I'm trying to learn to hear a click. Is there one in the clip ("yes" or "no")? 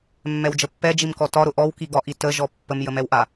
no